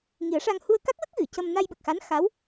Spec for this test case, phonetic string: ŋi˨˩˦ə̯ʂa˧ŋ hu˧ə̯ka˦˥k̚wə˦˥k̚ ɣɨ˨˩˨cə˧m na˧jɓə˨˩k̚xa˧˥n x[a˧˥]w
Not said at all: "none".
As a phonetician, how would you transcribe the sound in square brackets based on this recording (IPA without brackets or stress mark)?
a˧˥